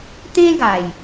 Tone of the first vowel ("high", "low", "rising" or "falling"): high